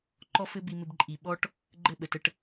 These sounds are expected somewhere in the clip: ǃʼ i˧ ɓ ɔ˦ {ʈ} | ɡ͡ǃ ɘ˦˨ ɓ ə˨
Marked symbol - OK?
yes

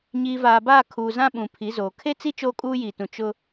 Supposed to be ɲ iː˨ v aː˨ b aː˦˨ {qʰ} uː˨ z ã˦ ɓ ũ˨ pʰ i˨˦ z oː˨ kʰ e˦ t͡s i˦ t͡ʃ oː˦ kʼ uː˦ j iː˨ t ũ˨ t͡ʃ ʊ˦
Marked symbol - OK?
no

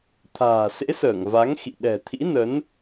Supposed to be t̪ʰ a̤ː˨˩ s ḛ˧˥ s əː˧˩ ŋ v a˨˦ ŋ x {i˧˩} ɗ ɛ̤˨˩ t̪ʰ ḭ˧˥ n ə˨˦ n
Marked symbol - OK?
no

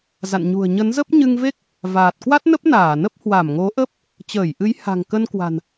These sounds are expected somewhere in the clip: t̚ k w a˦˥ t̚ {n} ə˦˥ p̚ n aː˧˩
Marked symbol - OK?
yes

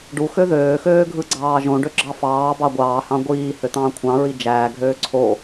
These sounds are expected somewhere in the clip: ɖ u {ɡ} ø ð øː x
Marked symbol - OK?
no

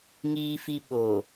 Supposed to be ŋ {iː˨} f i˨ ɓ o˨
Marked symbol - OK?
yes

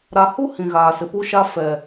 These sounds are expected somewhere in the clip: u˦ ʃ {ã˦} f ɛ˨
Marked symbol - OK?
no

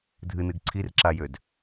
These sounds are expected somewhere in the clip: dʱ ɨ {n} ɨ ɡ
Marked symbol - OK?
yes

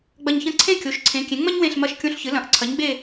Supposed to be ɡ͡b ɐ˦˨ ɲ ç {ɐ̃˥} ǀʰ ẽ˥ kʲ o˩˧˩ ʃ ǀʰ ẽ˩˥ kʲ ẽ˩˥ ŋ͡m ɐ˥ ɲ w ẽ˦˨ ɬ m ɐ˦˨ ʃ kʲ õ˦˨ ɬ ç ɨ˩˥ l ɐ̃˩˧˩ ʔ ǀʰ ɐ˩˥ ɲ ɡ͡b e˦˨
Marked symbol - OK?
yes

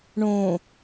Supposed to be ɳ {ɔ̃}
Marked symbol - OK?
no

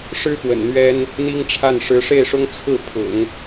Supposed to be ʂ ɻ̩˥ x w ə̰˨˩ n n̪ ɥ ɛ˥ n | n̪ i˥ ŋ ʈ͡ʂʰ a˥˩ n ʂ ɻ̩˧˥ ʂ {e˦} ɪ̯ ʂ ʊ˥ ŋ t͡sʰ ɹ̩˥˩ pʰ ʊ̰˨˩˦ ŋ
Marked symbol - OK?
no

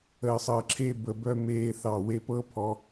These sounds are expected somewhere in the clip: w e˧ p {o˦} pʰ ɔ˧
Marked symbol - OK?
no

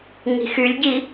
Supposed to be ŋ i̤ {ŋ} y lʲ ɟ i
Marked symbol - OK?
no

